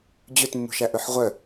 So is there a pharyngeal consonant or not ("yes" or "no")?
yes